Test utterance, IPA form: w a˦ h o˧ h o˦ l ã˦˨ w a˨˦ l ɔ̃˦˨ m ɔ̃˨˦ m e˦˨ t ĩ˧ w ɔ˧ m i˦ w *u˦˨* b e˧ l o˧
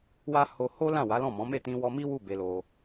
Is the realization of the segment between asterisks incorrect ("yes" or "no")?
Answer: no